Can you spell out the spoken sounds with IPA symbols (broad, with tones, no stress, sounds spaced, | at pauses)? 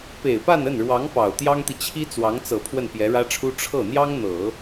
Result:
p e˨˩ ɪ̯ p a˥˧ n ə˥˩ n ɻ w ɑ˧˥ ŋ p ɑ˨˩ ʊ̯ t̪ j ɑ˥ ŋ t̪ i˨ t͡ɕʰ i˥ t͡s w ɑ˧˥ ŋ t͡s ɤ˨˩ pʰ w ə˥˩ n p j ɛ˧˥ ɻ ä˥ ʈ͡ʂʰ u˥ ʈ͡ʂʰ ɤ˥˩ n̪ j ɑ˥ ŋ n̪ ɤ˨˩˦